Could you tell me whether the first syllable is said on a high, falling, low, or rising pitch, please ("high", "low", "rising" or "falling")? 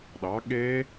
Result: rising